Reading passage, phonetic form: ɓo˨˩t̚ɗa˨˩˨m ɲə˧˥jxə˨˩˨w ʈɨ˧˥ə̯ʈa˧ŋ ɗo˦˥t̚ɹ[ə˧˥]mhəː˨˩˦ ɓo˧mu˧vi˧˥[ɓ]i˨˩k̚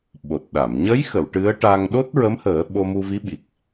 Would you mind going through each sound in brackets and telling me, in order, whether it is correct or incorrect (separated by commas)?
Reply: correct, correct